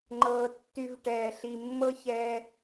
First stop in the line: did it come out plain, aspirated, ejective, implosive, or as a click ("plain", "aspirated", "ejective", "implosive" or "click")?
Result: click